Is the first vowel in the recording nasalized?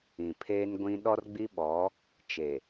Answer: yes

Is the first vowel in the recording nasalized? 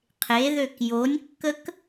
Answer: no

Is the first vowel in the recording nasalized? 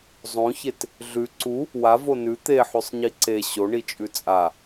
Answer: yes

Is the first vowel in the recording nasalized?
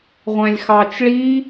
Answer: yes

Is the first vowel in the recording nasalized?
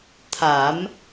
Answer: no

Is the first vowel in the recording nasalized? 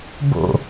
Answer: no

